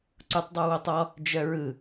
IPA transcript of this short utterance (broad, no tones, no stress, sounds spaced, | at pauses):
ǀ u tˤ dˤ ɯ w o tˤ ɔ | d͡ʒ œ ɹ ɯ